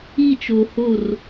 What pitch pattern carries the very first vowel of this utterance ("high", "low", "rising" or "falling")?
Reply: falling